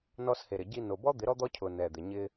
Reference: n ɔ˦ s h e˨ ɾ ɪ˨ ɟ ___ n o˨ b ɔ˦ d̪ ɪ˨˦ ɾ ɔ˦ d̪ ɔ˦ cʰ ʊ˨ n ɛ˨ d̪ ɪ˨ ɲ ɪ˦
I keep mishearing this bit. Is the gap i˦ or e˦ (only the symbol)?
i˦